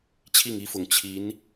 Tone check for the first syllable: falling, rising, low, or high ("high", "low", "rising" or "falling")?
falling